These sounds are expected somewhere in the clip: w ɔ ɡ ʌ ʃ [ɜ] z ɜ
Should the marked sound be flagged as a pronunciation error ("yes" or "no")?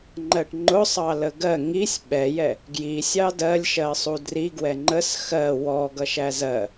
yes